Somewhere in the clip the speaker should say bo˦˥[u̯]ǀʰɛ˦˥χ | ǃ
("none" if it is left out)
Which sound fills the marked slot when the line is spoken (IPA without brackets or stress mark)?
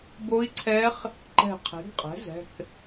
i̯